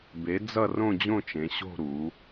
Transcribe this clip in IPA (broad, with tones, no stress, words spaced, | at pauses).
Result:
be˩˧ d͡zʌ˦˨rõ˦˨d͡ʑõ˦˨t͡ʃẽ˩˧ ɕo̤˦˨ ɾu˩˧